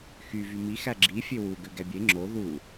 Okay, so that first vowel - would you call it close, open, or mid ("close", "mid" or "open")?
close